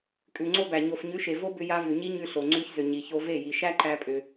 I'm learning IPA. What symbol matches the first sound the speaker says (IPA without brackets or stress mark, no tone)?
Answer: kʼ